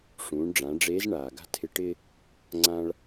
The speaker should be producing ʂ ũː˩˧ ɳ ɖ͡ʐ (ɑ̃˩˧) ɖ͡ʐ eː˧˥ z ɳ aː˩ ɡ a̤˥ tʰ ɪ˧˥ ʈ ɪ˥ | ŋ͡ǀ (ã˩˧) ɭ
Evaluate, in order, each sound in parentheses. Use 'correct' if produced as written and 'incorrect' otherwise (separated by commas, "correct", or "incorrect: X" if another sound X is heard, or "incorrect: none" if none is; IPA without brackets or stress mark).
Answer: incorrect: ã˩˧, incorrect: ã˥